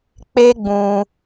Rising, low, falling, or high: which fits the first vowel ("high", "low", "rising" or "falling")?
high